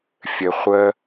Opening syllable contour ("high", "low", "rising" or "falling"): low